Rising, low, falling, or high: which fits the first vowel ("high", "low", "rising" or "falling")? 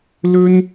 high